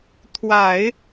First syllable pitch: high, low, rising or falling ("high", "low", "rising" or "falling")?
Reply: low